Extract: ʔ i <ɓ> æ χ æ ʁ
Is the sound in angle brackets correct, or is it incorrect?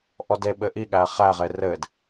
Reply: incorrect